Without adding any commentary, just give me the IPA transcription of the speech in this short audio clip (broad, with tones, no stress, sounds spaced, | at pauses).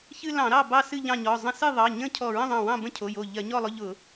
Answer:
ç ɨ˦ l ɑ̃˧˩˧ ɾ ɑ˥˨ b ɑ˦ s ɨ˥˨ ʎ ɑ̃˥˨ ɲ ɔ˩˧˩ zˤ ə̃˦ s ɨ˥˨ ðˤ ɑ˩˧˩ ɲ ə̃˥˨ cʰ ɔ˧˩ ɹ ə̃˥˨ ðˤ ɑ̃˧˩ w ɑ̃˥˨ b ə̃˥˨ cʰ o˩˧˩ j o˧˩ ʎ ɜ˧˩˧ ɲ ɔ˥˨ lˠ ʊ˦ ʎ ʊ˧˩˧